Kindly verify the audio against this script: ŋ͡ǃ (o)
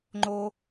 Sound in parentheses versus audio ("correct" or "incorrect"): correct